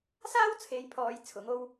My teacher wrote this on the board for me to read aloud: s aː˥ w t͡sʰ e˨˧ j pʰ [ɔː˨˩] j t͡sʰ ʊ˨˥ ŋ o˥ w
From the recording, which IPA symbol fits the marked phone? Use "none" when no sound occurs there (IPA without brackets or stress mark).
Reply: ɔː˨